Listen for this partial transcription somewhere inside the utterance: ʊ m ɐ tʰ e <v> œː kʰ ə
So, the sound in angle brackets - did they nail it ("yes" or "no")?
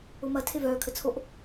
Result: yes